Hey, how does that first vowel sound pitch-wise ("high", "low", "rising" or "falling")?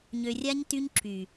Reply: low